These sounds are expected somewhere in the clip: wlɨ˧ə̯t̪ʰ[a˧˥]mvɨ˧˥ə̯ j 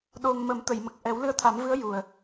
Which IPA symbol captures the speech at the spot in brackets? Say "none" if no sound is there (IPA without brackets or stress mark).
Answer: a˨˩˦